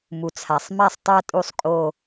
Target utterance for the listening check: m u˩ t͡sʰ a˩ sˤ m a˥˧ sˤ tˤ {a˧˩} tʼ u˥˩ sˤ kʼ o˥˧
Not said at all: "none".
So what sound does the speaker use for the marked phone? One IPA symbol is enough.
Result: a˥˧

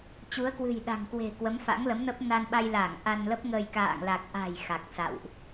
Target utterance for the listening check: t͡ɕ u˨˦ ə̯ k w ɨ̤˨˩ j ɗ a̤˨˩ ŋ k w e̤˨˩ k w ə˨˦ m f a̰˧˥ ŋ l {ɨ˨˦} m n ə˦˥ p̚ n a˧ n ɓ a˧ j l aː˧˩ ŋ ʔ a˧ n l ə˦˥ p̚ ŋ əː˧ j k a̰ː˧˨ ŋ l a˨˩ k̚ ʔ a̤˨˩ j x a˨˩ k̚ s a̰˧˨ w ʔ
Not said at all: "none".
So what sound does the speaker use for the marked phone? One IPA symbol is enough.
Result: ə˨˦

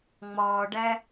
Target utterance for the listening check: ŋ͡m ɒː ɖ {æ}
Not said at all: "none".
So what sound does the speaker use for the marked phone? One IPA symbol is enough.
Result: æ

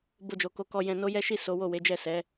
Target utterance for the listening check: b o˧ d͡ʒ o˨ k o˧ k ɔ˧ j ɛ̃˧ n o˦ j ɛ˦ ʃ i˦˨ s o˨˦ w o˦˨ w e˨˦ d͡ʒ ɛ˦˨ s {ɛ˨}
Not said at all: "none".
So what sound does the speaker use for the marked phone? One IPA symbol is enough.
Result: ɛ˨˦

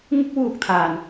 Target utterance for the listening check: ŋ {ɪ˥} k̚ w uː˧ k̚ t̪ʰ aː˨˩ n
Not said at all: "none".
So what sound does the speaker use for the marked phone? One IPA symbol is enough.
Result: ɪ˥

